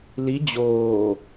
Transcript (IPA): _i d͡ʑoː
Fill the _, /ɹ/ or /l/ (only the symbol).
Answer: l